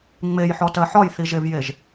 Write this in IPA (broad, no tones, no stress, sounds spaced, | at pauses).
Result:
ŋ͡m e j ħ ɔ t ɜ ħ ɒ j θ i ʒ e v j e ʒ